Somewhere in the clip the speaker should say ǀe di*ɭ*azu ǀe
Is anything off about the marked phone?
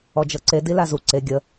yes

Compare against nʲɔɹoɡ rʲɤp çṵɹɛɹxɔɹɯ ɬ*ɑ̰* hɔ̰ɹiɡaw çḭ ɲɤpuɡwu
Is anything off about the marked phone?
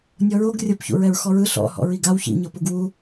yes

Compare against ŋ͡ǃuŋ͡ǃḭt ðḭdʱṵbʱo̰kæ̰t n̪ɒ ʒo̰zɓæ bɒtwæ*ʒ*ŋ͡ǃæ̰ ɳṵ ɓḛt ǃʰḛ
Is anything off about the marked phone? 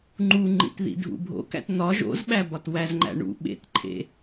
yes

